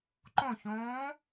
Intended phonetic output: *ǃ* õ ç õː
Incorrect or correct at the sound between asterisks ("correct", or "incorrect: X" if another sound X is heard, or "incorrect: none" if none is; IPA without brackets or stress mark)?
correct